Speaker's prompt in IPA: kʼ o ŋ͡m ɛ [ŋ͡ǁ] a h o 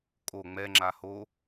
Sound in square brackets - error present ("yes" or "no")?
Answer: no